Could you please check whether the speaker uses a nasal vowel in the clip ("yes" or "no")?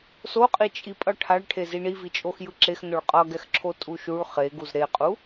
no